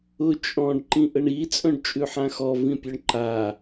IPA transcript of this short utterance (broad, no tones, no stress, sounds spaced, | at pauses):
ʊ t͡ʃʼ ɔ̃ ɖ ǃ ĩ ʔ ə ɳ i t͡sʼ œ̃ ɖ t͡ʃʼ ʉ ħ ã x ɔ v ĩ pʲ œ ɳ ǃ a